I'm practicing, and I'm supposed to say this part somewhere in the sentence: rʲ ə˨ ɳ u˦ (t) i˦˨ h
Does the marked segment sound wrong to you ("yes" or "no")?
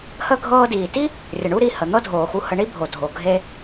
yes